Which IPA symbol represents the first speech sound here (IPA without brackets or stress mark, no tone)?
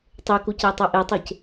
tˤ